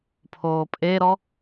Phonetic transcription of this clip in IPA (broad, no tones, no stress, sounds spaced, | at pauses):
pʰ oː pʼ e ɾ ɔ